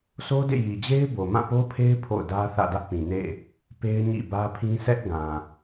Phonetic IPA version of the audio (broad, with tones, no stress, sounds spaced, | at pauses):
sʰ o˦ d ḛ˦˨ j i˨ d͡ʑ e˦ ɪ̯ b o˨ m ã˦˨ p o˦ pʰ e˦ ɪ̯ pʰ o̰˦˨ ʊ̯ d ä˦ θ ä̰˦˨ d ä˦ ʔ p ĩ˨ n ḛ˦˨ | p e˦ ɪ̯ ɲ ḭ˦˨ b ä˦ pʰ ĩ˦ s ɛ˦ ʔ ɡ ã˨